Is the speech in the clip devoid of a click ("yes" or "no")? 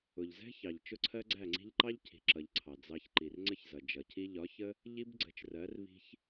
no